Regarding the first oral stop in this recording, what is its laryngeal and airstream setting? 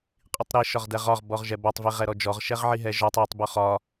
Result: ejective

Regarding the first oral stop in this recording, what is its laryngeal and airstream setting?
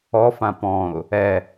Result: plain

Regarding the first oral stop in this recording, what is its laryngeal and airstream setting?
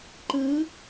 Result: click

